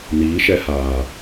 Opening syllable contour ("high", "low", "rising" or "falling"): rising